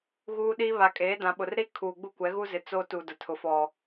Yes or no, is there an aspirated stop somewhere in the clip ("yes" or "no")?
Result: yes